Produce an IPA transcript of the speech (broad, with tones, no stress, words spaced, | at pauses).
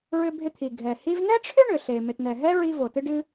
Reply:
ɹʏ˧bʱɪ˧t̪ʰi˩ ɡʱɛ˩ hi˧vnɛ˥ʈ͡ʂʰʏ˥ ɳʏ˩ɬe˩ mɪ˩tnɛ˩ ɦɛ˥ ɹi˧vo˩ tɨ˧ɖɨ˧